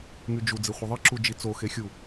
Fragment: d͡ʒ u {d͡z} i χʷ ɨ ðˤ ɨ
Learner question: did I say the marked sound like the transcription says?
yes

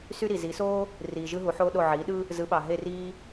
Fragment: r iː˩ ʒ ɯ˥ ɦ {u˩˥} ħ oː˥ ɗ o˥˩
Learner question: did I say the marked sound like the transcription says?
yes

